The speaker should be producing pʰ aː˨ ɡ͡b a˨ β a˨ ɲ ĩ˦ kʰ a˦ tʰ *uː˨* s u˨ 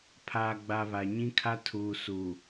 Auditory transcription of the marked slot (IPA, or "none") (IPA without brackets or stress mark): uː˨